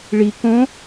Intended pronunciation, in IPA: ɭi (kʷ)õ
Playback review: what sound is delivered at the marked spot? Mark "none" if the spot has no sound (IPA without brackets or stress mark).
k